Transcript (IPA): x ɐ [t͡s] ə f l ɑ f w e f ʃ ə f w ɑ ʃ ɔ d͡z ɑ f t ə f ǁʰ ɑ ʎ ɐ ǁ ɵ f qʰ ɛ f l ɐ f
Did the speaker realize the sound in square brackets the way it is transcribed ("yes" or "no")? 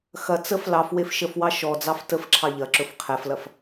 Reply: yes